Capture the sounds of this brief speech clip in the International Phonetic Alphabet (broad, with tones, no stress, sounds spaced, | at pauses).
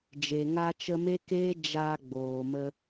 d͡ʒ e˨ ŋ a˧ t͡ʃ ə˧ m e˦ k eː˦ d͡ʒ a˧ ɡ͡b oː˨ m ə˧